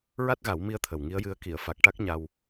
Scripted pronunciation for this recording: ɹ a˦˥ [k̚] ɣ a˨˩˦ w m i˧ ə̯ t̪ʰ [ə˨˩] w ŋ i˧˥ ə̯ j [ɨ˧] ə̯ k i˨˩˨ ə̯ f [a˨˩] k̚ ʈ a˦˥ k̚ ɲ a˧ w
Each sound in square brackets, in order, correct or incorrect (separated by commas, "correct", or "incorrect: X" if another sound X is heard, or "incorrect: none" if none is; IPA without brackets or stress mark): incorrect: t̚, correct, correct, correct